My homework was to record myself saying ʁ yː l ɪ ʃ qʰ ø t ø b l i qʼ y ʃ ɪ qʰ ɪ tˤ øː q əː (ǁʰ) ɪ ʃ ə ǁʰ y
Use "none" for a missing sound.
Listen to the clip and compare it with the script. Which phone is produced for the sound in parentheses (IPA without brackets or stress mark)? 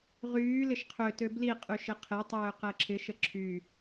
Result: ǁʰ